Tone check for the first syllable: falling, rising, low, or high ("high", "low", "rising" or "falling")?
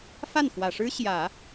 falling